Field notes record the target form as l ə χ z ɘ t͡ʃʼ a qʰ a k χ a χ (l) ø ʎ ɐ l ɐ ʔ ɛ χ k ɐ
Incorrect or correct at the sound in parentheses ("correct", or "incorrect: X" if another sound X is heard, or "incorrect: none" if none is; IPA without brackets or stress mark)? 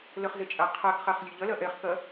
incorrect: lʲ